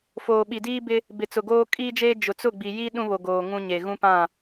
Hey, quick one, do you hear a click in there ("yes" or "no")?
no